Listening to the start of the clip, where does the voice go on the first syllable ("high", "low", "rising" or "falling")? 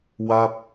falling